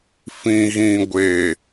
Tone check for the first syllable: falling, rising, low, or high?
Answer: low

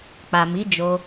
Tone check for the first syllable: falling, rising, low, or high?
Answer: low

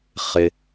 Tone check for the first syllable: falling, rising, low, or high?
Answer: low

